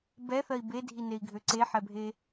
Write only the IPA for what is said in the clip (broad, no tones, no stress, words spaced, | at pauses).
bɛθɜi̯ bedʱinei̯ɡʱø ǀeħɛbʱe